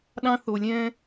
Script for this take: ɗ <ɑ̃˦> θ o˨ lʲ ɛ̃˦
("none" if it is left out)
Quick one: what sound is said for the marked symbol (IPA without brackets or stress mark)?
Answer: ɑ̃˦